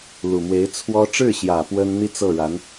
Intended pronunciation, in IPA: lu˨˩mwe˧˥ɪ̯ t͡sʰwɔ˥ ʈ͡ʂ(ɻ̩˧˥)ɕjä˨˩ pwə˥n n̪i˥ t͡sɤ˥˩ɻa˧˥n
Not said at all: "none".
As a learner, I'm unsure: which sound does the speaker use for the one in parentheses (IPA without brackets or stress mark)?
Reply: ɻ̩˥˩